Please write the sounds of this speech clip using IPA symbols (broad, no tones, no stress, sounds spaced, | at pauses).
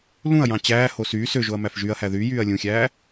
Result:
l ũ ɐ̯ j ɑ̃ t͡ɕ æː h o s yː s ø ʒ o ɐ̯ m æ f ʒ y ɐ̯ h æ ð y j yː ɐ̯ lʲ ũ xʲ æː